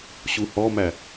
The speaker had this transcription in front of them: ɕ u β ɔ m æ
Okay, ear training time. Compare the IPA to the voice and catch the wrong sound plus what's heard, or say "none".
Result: β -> h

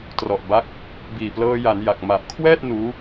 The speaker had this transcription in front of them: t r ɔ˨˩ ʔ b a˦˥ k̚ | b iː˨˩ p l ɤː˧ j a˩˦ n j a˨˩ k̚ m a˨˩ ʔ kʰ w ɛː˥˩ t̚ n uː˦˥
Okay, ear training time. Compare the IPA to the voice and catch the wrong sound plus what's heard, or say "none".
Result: none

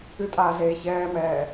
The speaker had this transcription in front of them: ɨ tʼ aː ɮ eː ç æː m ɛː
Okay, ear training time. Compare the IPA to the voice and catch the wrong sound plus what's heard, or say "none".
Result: æː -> ɛː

